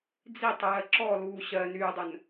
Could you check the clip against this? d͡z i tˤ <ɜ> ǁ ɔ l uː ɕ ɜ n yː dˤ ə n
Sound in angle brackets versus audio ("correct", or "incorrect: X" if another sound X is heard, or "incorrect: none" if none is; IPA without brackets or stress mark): incorrect: ɜː